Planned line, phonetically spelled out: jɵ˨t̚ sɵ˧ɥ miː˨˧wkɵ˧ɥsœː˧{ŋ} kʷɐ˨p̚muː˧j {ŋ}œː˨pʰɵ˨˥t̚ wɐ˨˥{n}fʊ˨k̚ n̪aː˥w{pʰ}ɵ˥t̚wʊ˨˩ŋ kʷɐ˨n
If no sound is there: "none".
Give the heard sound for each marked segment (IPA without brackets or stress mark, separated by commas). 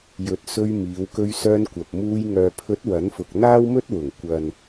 n, ŋ, n, m